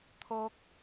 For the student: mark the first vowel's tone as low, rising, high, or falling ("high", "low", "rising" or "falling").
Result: high